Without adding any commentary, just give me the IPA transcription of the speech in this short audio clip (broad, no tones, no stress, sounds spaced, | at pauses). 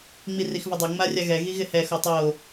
ŋ͡m i r i x v ə dˤ o ŋ͡m a rʲ a ɣ ɛ ɣ i ɣ ɪ h ɛ x o tˤ o